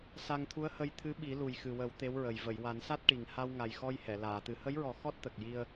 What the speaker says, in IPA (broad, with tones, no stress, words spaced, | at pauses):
sa˧ŋt̪ʰu˧˥ə̯hə˧jt̪ʰɨ˧˥ ɓi˨˩˦lu˨˩jxɨ˨˩wə˨˩˦w t̪e˧˥wɹə˨˩j və˨˩˨jwa˨˩˦nsa˦˥t̚ʈi˨˩ŋ ha˧wŋa˨˩jxɔ˧j hɛ˨˩˨ laː˨˩˨t̪ɨ˨˩˦ hə˧˥jɹɔ˨˩˦ xɔ˦˥t̚t̪ə˨˩k̚ji˧ə̯